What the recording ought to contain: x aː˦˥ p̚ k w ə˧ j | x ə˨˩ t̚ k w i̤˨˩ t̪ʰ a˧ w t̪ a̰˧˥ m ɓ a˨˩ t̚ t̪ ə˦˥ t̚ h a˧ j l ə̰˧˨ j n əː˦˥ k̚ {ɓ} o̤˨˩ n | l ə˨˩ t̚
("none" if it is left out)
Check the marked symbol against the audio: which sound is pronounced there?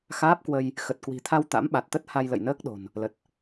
ɗ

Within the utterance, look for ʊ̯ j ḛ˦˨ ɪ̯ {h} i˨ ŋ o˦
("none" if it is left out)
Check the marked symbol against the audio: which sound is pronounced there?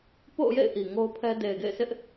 ʔ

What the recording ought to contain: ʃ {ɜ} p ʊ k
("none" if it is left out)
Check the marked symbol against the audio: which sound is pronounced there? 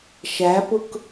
æ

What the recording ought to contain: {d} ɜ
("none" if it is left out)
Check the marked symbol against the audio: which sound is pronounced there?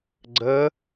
ɡ͡ǀ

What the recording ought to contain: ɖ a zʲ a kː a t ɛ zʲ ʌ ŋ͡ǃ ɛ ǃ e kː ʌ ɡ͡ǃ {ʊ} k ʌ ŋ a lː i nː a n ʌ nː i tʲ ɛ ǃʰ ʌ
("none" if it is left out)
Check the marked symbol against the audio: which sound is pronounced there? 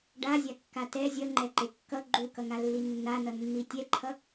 u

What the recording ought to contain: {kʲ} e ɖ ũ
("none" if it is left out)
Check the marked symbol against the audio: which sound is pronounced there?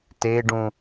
t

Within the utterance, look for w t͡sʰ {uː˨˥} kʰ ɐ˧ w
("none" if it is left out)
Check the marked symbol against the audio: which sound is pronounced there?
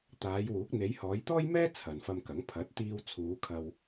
uː˨˧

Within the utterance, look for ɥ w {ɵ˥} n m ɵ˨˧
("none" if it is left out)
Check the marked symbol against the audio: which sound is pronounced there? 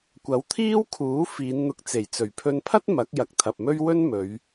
ɵ˥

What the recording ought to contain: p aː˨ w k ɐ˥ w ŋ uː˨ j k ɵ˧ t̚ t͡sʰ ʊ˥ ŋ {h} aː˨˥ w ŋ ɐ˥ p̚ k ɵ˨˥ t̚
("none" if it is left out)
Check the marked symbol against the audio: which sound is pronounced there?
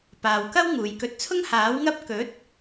h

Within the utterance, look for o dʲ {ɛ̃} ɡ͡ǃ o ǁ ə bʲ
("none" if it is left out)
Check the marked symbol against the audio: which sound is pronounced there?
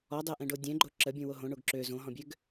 ɛ̃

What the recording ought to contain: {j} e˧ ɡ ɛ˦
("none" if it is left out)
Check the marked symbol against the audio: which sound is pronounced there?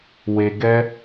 w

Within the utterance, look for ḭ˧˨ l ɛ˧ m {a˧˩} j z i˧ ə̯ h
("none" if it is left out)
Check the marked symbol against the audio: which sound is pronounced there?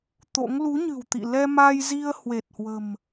a˧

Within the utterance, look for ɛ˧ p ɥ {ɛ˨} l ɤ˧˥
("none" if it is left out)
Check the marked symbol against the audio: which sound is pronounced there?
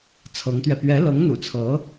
ɛ˧˥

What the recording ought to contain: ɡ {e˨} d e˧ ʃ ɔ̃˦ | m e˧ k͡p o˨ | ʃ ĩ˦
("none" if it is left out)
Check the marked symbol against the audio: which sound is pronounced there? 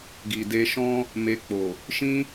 i˨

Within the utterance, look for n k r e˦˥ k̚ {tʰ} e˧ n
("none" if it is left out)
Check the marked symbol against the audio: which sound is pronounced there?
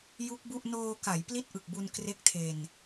tʰ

